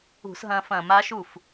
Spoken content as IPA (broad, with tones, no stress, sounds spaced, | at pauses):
ṳ˧˩˧ s ɦ ɐ̃ː˧ f ɐ̃ː˧˩˧ m a˧˥ ʃ u˥˩ f